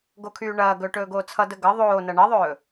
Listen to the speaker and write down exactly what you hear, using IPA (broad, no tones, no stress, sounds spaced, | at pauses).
ɡ o kʰ yː ɳ ɐː ɡ ɵː ʈ ɵː ɡ oː t͡sʰ ʌ d ə ɡ ʌ ðˤ oː n ɐ ɳ ɐ ðˤ ɵː